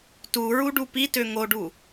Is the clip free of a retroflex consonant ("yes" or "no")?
no